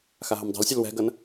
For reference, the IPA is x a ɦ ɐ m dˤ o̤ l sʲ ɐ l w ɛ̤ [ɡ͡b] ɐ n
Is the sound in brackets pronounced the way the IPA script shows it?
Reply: no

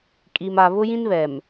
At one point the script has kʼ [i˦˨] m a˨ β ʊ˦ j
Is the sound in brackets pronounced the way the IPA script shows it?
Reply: no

